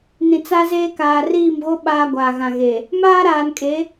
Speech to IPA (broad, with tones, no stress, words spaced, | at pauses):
nĩ˨t͡sa˦zeː˦kaː˨ riː˦˨mɣo˦ ɓaː˦ɡʷaː˨ɣã˨ɣe˨ | maː˦ɾaː˨nkʼe˨˦